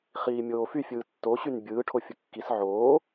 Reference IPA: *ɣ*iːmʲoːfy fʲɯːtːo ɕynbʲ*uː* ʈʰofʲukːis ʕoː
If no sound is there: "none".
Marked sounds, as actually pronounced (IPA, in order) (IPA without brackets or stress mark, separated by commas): χ, ɯː